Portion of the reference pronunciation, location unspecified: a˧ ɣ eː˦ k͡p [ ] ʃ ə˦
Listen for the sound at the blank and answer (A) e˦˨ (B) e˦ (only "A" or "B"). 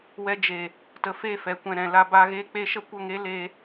B